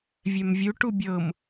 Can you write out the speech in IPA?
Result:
vʲɛmvʲu ʈubʲɤm

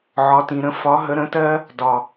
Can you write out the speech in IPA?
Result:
ʕɒ˨tĩ˨ ɾə̃˧ fɒ˨˦ ɦə˨˦ɾə̃˨˦tɜ˦ | dɒ˨

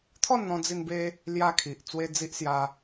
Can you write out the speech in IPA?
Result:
t̪ʰɔ˥˧nn̪ɔ̃˧d͡zi˧nbe˧ | lja˦kʰi˨ʔ t͡swe˦d͡zi˦ʔsja˧

